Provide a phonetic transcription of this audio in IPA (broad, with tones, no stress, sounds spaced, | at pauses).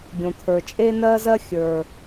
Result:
ɡʲ õ˨ t̪ʰ ə˞˨ t͡ʃʼ e˦ n ɜ˦ z ɜ˦ xʲ ə˞˨